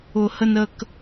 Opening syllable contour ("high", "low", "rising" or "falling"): high